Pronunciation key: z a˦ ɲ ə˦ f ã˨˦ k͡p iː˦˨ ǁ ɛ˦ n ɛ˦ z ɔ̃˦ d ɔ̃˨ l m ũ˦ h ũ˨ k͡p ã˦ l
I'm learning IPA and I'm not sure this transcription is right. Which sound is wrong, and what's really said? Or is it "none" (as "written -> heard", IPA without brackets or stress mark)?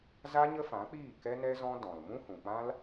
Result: ǁ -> k